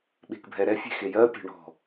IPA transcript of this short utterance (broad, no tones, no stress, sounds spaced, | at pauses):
ɓ e̤ k bʱ ɛ ɾ ɛ fʲ e̤ x e j ɜ pʲ e̤ ɳ ɔ̤